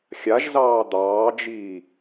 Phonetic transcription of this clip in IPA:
xʲ a ʒ z ɑː d̪ ɑː d͡ʒ iː

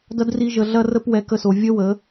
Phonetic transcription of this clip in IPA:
d ɐ˦ d r i˦ ʒ ə˧ ɮ ɐ˦ r ə˦ p w ɛ˧ k ə˧ s o˨ vʲ ə˦ w ə˨˦

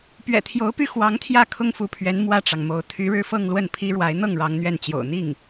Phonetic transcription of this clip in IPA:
p ɥ ɛ̰˨˩ t̪ʰ j o˧˥ ʊ̯ p y˥˩ x w ɑ˧˥ ŋ t̪ʰ j ä˥˩ kʰ ʊ˥ ŋ f u˧˥ pʰ ɥ ɛ˧˥ n m w ä˥˩ ʈ͡ʂ ɑ˩ ŋ m o˧˥ ʊ̯ t̪ʰ y˧˥ ɻ ɻ̩˥˧ f ɤ˥˧ ŋ l w ə˥˩ n pʰ i˥ ɻ w a˧˥ ɪ̯ n̪ ɤ˥˩ ŋ ɻ ɑ˧˥ ŋ n̪ ɥ ɛ˥˩ n t͡ɕ j o̰˨˩ ʊ̯ n̪ i˥˩ ŋ

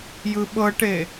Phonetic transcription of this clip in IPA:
j ɯ ɓ ɤ ʈ e

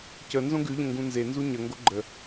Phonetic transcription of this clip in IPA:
c ə n z õ ɡ ʉ ʎ ə̃ ŋ ɡ ũ n z e n z u ɲ ə ŋ ɡ o ɡ͡ǃ ə

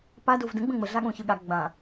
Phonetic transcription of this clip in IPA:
p a d o v d ə̃ ɡ͡b ə̃ ŋ͡m ə ɮ a ɠ õ ç ɯ ɠ a ɡ͡b ã

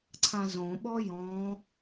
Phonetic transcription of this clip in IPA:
ǀʰ ã z õ ɓ ɔ j ɔ̃

